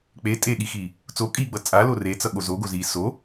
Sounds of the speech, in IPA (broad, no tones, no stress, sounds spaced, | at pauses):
k͡p e tʼ e ɠ i x i | t͡s o kʼ iː ɡ͡b ʌ t͡sʼ a l o r e t͡s ʌ ɠ o z o ɡ o z iː s o